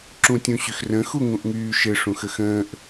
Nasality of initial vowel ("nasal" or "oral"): nasal